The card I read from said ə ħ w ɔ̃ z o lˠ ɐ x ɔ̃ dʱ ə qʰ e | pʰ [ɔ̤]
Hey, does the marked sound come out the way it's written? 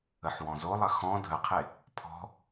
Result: yes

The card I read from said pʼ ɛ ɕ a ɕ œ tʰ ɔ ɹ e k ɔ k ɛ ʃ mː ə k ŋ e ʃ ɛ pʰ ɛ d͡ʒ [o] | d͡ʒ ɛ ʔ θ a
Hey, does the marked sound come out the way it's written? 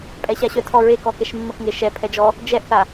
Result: no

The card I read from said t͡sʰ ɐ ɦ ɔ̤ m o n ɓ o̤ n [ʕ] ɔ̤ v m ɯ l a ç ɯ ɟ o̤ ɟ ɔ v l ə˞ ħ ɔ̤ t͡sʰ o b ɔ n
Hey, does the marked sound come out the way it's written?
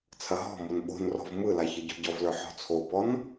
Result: no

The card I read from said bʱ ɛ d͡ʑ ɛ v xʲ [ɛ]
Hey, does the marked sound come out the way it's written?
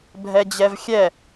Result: yes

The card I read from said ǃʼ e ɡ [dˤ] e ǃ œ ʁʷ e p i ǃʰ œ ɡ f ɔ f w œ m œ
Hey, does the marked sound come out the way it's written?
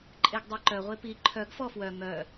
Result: yes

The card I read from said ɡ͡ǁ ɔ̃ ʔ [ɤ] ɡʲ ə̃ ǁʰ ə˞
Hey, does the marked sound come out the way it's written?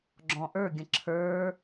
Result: no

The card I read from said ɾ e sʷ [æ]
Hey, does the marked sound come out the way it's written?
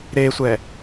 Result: no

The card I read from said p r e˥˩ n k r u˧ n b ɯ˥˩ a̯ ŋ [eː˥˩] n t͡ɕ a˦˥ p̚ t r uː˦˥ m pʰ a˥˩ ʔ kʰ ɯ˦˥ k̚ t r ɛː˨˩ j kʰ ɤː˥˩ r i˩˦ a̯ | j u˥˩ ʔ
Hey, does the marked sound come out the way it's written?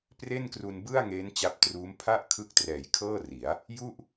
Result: no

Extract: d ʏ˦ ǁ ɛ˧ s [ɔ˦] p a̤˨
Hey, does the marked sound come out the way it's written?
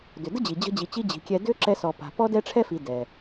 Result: no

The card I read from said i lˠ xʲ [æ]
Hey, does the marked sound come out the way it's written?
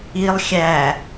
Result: yes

